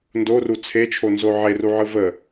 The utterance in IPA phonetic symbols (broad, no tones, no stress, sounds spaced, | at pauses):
n d o r u t͡sʰ e t͡ʃʰ o n z o ʕ e r u ʕ ɯ v ə